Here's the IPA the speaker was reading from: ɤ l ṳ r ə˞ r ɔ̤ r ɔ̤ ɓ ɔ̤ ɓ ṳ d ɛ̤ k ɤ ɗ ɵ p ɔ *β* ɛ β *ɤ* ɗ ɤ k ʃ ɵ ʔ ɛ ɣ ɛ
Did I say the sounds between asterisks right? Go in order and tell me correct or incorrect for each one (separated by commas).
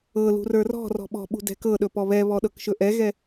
correct, incorrect